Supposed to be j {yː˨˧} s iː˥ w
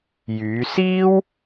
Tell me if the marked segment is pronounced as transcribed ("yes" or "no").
yes